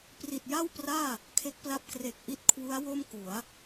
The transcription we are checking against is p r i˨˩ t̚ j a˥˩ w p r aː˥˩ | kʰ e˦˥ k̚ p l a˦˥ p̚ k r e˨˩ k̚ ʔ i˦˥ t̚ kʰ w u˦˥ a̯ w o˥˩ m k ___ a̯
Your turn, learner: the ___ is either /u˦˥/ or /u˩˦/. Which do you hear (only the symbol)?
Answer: u˩˦